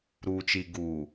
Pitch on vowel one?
low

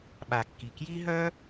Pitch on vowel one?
low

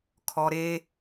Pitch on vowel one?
high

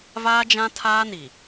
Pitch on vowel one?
high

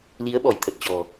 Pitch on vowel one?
rising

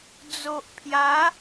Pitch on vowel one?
low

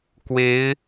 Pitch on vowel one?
rising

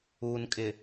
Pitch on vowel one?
low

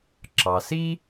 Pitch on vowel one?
low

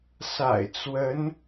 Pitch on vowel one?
low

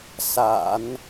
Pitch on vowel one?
low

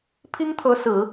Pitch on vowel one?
high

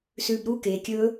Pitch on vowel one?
low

